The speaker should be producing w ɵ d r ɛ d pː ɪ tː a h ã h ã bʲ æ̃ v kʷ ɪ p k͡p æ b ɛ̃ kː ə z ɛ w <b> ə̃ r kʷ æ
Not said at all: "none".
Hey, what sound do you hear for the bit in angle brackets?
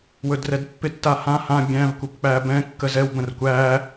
b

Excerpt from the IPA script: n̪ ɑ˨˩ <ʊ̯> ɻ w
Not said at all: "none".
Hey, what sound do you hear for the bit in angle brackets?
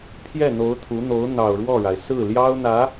ʊ̯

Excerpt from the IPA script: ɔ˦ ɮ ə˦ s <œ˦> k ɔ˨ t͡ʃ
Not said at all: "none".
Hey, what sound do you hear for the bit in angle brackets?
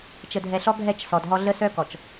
œ˦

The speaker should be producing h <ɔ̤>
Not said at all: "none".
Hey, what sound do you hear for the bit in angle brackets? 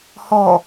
ɔ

